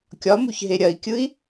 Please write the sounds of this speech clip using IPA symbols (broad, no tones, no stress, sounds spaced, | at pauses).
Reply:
kʲ ɒ m u ç ɦ e ɾʲ ɐ i̯ kʲ ɯ i̯